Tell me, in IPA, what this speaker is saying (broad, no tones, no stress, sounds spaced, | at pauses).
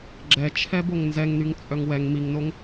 ɡ͡ǁ ɛ t͡ʃʰ ɛ b o ŋ n z ɛ ŋ n y ŋ t͡sʼ œ ŋ w ɛ ŋ m i ŋ n o ŋ